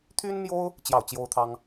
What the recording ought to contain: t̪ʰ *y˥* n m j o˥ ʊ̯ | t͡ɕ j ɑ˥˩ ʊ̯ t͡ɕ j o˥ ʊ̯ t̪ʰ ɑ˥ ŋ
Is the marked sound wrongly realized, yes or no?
no